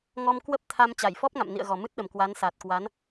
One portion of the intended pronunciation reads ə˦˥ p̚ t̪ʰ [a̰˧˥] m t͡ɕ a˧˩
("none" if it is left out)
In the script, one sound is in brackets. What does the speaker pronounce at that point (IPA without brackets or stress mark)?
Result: a˧